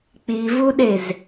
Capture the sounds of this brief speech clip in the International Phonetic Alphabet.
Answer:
k͡p i v u ɗ e z

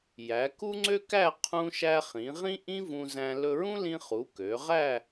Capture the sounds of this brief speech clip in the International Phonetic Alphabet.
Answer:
j æ˩˧ k u˥ ŋ͡ǀ ø˥ k æ˥˧ qʰ ũ˧ ʃ æ˧ χ ĩ˩˧ ʁ ĩ˥ ʔ ĩ˥ v ũ˧ z æ̃˧ l ɵ˧ ɹ ũ˥ l ĩ˧ χ u˩˧ k ø˩˧ ʁ æ˥˧

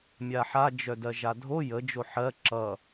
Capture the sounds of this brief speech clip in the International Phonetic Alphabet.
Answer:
mʲ a ħ a d͡ʒ œ d ɜ ʒ a dʱ o j ə d͡ʒ o ħ ɜ ǁ ʌ

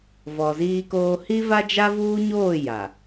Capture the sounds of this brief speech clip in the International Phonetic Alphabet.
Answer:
v ɔ˨ z iː˦ k oː˦ h i˦ v a˦ d͡ʒ a˦ v uː˦ ɲ oː˦˨ j a˨

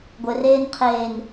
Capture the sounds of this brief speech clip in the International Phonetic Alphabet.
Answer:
ɡʷ ɘ r eː n qʰ eː n

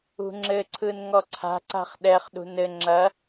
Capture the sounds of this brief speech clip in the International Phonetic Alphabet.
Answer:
ṳ ŋ͡ǁ ɘ ǀʰ ɯ n ŋ ɔ ǀʰ a̤ ǀ a̤ χ ɗ ɛ χ ɗ ṳ n ɘ ŋ͡ǁ ɐ

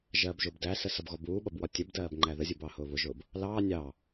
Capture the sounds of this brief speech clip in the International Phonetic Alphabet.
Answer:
ʒ ɜː b ʒ ʊː b d æ s ə s ʌ b ɣ ɔ b uː ɓ ʌ b w ɒ tʲ ə b d ɜː b ŋ͡ǃ æ ð ə zʲ u b ɑ h ʊː β ʊ ʒ ʊː b | l ɑː nʲ ɑː

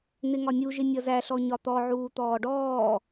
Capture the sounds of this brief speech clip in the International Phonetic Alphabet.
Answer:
n̪ ɪ ŋ ɒ nʲ u ʒ ɪ nʲ ʌ z æ ɬ ɔ ɲ ɒ t̪ ɔ ʕ uː t̪ ɔː ɖ ɔː

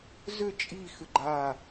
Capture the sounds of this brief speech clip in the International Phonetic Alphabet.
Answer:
z ʏ t͡ʃʼ i x ʏ ɡ͡ǃ a

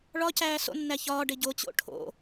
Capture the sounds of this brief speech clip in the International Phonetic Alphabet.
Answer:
ɭ ɒ c æː s o̰ nː æ ç ɒː ɖ e ɟ o t͡ɕ o̰ ʈʰ o̰

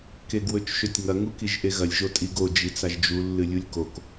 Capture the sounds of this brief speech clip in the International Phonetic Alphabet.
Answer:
k e ɡ w ɵ t͡ʃ ʃ ɵ tʲ ŋ ɐ ŋ u k i ʒ ʔ e ɣ ɐ lʲ ʒ o tʼ i ɡ o d͡ʒ i t͡s a ʒ d͡ʒ u lː ɨ lʲ u lʲ k o k

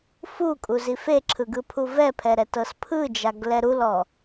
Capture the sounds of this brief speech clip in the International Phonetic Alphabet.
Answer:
f u kʼ u z i f e ǁʰ ɯ ɡ ɯ pʰ u v ɛ pʰ ɛ ɾ ɛ t ɤ s pʰ ɯ d͡ʒ a ɡ l ɛ ɾ u l ɔ

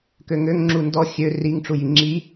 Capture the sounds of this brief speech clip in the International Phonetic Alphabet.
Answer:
k ø ŋ ø ŋ ŋ͡ǁ u n d ɔ xʲ ø r i ŋ ʈ͡ʂ u j i ŋ͡ǁ i

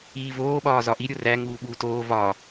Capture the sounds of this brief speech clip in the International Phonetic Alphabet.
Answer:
iː v oː ɓ ɒː z ɒ ʔ i ɾʲ o r æ ŋ uː ɓ uː t oː v ɒ

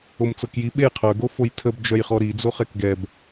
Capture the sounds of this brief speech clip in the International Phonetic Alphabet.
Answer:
o m t͡s ɤ k j i ɓ e j qʰ œ ɡ o f o j tʰ ə b d͡ʒ œ j χ ɔ ɾ i d͡z o χ ɛ k ɡ ɛ b

